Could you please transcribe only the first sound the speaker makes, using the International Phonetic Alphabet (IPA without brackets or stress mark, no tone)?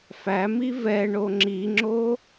f